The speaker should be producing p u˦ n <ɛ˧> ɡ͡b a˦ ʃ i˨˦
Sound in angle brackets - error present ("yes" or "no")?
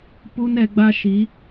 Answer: no